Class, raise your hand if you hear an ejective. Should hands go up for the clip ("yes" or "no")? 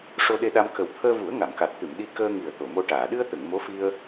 no